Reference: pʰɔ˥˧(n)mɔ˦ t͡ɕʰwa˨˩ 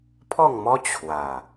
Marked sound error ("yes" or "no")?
yes